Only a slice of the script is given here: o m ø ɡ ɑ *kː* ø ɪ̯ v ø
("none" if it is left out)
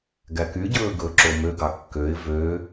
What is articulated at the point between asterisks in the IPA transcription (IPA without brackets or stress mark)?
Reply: kː